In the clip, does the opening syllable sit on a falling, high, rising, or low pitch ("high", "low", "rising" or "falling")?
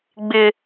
high